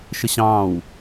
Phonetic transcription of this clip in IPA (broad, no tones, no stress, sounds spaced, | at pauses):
ʃ ə ɕ ɑ̃ː w